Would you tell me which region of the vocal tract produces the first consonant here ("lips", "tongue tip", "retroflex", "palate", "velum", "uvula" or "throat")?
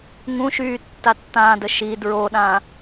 velum